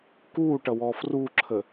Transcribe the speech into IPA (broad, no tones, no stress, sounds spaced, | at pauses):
k u ʈ ʌ w ɔ f r u ǁʰ ə